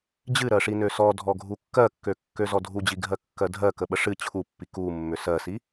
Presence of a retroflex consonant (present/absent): present